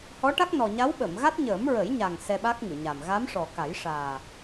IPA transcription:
hɔ˧˥ʈa˦˥k̚nɔ˨˩ ɲa˧˥wɓəː˨˩˨mɣa˦˥t̚ ɲəː˨˩˦mɹə˨˩˦jɲa˨˩ŋ sɛ˧ɓa˦˥k̚ŋɨ˨˩˨ɲa˨˩m ɣa˧˥mʂɔ˨˩ka˨˩˦j ʂaː˨˩

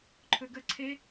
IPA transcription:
ǃʰɵɡə ǀʰe

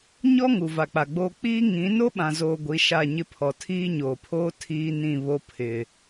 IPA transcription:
ɲɔ˦ ŋu˨va˨k͡pa˨ɡ͡boː˦ k͡piː˦ ŋĩ˨˦ no˦ɓã˨zoː˨ ɡʷi˨˦ʃa˦˨ɲɪ˦pʰɔ˨ tʰiː˦ɲoː˨pʰoː˦ tʰiː˦ nĩ˦˨βo˦ pʰɪ˨

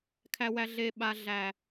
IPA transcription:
kʰæ˨wæ˨ ɮe˨ ɓa˦ɮæ˦˨

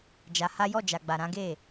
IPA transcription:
d͡ʒa˧ha˦ jɔ˦˨d͡ʒa˨ɡ͡ba˨ ɾã˨˦ɡe˦˨

